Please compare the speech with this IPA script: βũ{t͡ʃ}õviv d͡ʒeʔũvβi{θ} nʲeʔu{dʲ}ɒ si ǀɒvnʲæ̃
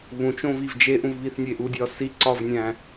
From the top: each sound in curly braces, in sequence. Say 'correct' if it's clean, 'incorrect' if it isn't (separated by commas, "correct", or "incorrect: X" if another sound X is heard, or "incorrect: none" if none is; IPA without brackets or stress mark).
correct, correct, correct